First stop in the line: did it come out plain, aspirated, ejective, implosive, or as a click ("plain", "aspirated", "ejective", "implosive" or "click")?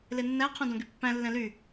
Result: aspirated